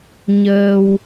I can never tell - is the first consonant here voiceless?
no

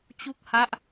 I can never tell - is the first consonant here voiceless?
yes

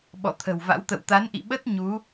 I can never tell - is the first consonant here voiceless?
no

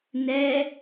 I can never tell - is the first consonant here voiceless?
no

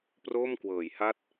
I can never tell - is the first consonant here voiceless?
yes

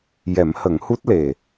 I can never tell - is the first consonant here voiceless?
no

